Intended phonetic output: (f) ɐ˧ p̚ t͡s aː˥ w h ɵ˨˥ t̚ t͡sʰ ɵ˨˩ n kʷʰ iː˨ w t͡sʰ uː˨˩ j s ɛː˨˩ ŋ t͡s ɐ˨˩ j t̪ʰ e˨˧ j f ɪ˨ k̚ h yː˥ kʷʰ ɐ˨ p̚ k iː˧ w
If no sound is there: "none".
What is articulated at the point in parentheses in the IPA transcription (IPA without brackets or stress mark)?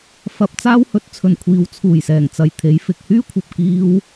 f